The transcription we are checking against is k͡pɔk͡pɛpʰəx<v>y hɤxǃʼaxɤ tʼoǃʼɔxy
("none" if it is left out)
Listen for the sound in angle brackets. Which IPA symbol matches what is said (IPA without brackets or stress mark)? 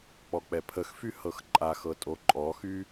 f